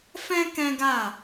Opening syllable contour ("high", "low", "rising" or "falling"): high